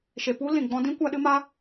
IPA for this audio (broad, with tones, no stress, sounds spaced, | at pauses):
ʃ e˨ p u˦ l ĩ˨ ɡ͡b ɔ̃˦ d ĩ˦ kʷ a˦ ɗ ɨ˦ m a˦